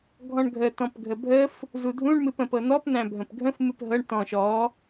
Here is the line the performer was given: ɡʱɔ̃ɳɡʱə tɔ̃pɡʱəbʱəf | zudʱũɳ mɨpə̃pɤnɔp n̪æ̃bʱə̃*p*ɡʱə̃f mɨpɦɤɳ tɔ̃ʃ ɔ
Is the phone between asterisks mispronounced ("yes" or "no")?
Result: no